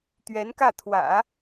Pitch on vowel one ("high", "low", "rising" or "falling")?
rising